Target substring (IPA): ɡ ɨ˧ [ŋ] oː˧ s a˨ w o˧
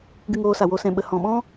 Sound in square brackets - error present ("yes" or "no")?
no